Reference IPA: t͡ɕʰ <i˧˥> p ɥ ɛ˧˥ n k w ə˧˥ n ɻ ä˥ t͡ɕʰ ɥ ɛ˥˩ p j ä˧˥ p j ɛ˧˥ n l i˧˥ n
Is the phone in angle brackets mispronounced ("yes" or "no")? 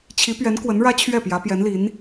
no